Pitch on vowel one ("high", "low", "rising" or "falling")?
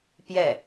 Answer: falling